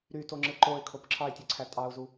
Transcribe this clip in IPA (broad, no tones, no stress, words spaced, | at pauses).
ɾytoŋ͡ǁɯ ǃoɪ̯kʰop ǁʰɑɪ̯tʲeǀʰæ tʼɑʊ̯zu